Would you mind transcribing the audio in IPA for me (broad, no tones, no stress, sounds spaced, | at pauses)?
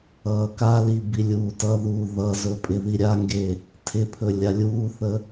ʌː k a l i b i lʲ uː t ʌ ð uː ð ʌ z ɵ pʼ ɪ ð i ɾʲ a ŋ ɡ e | tʰ ɪ pʰ ɵ lʲ a lʲ uː θ ə